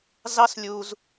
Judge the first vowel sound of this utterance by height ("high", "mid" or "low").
low